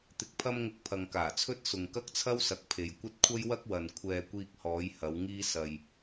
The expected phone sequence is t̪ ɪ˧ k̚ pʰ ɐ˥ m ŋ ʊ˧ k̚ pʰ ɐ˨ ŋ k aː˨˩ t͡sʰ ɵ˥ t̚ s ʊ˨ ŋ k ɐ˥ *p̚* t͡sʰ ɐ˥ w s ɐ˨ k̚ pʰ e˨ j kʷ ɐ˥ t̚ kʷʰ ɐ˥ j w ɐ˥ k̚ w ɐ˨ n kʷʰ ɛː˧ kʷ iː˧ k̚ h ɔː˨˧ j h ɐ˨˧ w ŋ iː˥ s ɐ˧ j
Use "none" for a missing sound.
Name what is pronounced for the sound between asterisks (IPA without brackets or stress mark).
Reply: k̚